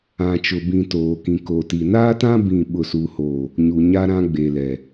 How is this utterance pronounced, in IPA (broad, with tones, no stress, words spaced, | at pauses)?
ã˨t͡ʃʊ˨bĩ˨ toː˨kĩ˨ ko˨ti˨ naː˦tã˦ bĩ˦˨ɓʊ˦˨suː˦hoː˦˨ | ɲu˨ɲa˦ɾã˦ ɡ͡be˨lɛ˨